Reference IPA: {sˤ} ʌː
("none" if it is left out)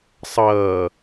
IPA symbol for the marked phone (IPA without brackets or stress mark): sˤ